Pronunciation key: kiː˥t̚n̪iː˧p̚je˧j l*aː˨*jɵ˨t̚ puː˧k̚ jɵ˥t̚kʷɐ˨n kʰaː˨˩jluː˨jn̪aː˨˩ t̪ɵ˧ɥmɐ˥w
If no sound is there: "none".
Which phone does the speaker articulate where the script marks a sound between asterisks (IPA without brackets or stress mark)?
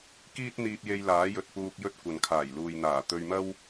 aː˨˥